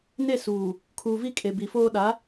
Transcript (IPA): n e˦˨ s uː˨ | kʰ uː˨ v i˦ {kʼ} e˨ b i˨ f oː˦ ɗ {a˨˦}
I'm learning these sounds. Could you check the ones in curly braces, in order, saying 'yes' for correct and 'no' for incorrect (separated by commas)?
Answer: yes, yes